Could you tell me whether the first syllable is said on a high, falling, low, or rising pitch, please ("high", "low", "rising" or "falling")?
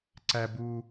low